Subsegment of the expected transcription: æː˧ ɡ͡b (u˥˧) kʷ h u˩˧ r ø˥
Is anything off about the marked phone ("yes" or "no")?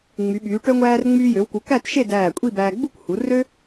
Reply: no